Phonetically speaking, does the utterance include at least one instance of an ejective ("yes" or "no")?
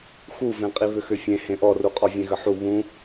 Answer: yes